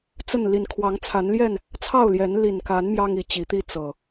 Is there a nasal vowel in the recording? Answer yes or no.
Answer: no